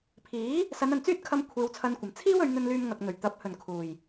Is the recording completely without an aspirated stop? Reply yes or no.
no